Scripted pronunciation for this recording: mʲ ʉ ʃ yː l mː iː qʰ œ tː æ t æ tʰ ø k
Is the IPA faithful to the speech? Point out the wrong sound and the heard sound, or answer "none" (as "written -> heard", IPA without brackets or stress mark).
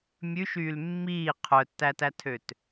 k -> t